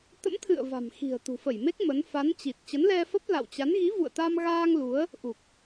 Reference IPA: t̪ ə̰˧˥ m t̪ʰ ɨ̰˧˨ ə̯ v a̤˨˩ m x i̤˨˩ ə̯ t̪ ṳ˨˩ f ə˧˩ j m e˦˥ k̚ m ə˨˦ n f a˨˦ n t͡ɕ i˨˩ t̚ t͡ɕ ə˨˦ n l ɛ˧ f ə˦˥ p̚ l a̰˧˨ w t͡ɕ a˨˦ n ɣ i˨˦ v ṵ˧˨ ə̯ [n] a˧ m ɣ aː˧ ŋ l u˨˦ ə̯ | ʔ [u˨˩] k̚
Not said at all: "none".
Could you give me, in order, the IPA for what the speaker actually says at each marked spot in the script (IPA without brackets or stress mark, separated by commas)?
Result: t̪, u˨˩